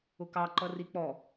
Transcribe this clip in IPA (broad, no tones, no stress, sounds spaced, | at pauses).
ʊ k ɑ ǃ ʌ r i k͡p ɔ